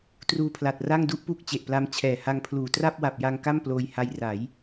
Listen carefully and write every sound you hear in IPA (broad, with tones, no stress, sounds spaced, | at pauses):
t r uː˧ pʰ l a˨˩ t̚ r a˥˩ ŋ d u˥˩ ʔ p u˥˩ k̚ t͡ɕ e˨˩ ʔ p l a˦˥ m t͡ɕʰ ɛː˨˩ h a˧ ŋ pʰ l uː˨˩ t r a˥˩ p̚ w a˨˩ p̚ j a˧ ŋ k a˥˩ m p l oː˧ j h a˧ j r a˩˦ j